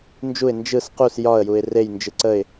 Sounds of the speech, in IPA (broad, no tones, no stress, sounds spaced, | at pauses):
n d͡ʒ u ɪ̯ n d͡ʒ ɯ s q u s j ɒ ə̯ j u ɪ̯ r e j n d͡ʒ ɯ ǀ ə ɪ̯